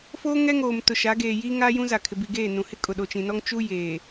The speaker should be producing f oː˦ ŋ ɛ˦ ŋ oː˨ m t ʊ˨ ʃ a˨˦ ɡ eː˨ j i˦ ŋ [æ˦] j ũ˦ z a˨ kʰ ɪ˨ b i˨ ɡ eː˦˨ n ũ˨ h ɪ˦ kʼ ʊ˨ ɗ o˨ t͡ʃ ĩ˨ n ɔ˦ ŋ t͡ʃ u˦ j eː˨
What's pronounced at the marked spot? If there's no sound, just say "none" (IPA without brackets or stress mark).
a˦